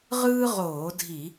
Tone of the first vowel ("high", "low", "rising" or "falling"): high